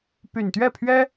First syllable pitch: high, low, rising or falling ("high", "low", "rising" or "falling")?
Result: low